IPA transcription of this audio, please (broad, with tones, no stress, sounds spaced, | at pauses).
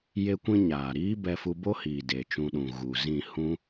j e˦ kʷ ĩ˦ ɲ aː˨ ɾ iː˦ b ɛ˧ f u˧ b o˦ h iː˨ d e˨ t͡ʃ ũ˧ ɗ ũ˨ ɣ u˨ z ĩ˦˨ h ũ˦